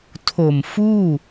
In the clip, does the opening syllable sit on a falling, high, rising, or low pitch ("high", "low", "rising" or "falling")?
low